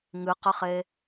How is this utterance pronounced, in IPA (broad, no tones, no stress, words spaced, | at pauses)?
ŋɨqəχe